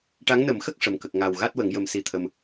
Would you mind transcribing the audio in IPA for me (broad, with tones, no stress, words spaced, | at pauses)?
ʈa˧˥ŋnə˨˩˦mxə˦˥k̚ ʂə˨˩˨mkə˨˩k̚ŋa˨˩w ɣa˦˥t̚wə˨˩˦ŋ jə˨˩˦msi˨˩t̪ʰə˨˩m